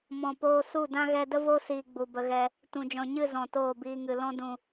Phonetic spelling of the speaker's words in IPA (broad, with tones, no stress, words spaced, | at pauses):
mɔ̃˨poː˧ su˦˨dã˦ ɣɛ˧də˦ vo˦siː˨ ɡ͡bu˨bə˧ɣɛ˧ | tũ˨d͡ʒɔ̃˨ɲɨ˦˨ zɔ̃˨toː˦˨biː˧ŋɨ˨ lɔ̃˧dũ˨